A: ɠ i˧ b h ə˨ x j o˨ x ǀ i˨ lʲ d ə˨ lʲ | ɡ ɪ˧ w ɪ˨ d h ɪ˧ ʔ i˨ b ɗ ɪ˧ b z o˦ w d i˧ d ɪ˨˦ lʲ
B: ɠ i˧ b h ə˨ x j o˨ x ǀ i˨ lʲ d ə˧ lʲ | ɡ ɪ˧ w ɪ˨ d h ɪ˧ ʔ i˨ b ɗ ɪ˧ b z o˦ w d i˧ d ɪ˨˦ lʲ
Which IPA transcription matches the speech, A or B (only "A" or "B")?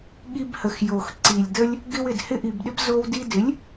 B